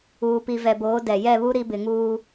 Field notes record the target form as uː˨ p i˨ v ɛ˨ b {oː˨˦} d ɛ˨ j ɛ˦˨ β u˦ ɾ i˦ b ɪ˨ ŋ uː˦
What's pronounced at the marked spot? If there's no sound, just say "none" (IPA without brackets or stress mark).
oː˨˦